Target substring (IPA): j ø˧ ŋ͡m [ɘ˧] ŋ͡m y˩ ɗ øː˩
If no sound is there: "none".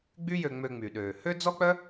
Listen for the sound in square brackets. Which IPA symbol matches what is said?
ø˧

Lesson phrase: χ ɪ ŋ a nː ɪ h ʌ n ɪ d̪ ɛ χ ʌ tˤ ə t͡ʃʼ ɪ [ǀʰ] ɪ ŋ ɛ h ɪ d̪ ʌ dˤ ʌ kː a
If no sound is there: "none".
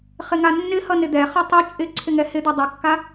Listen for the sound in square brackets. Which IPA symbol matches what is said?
ǀʰ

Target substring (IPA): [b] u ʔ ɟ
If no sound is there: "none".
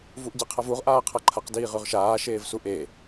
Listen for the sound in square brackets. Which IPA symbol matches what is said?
v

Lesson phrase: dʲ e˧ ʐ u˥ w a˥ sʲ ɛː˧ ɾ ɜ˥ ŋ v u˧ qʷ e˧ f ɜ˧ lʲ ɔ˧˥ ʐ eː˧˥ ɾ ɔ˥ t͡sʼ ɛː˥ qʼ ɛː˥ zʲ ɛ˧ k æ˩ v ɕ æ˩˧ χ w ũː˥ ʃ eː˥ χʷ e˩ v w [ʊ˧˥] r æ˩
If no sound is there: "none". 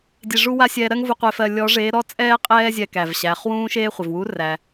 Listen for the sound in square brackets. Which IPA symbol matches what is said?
u˧˥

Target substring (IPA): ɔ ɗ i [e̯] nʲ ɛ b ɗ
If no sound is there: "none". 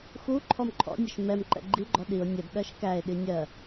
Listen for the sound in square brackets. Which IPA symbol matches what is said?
o̯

